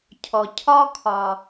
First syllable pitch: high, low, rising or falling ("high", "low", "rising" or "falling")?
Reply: low